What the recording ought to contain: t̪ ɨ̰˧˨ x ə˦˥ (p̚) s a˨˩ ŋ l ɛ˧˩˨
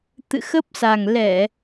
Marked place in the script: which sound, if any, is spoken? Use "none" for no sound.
p̚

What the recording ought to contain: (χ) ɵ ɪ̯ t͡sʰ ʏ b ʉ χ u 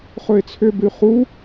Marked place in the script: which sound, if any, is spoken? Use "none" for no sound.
χ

